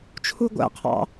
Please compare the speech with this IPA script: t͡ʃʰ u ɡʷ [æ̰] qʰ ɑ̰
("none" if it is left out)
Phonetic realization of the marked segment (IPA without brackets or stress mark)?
æ̰